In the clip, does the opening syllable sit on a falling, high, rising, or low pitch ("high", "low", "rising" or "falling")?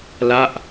falling